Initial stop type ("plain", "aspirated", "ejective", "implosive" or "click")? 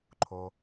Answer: click